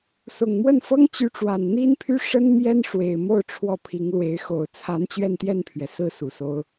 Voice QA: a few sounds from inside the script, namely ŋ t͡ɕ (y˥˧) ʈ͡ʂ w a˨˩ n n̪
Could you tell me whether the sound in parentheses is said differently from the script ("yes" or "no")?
yes